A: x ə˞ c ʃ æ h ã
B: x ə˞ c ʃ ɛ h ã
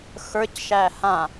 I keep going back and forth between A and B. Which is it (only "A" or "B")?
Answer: A